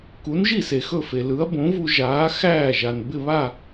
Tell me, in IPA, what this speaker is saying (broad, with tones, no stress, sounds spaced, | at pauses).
k u˩˥ n ʒ i˥˩ s e˩ x ɵ˥˩ f e˩ l ɯ˩˥ ɐ̯ b õ˩˥ v u˧ ʒ aː˩˥ x æː˥˩ ʒ a˩ n b ɪ˥˩ β a˥˩